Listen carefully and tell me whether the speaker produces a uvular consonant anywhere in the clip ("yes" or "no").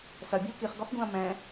yes